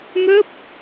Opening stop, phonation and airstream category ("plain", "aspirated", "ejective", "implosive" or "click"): plain